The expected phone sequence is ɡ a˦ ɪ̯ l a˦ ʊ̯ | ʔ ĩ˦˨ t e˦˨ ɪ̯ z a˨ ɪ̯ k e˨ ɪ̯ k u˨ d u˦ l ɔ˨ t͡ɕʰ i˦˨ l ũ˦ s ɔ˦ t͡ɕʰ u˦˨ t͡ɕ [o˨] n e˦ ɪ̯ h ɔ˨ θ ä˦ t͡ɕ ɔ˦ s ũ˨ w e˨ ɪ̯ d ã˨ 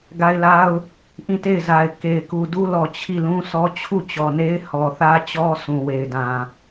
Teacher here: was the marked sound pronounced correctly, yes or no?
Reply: no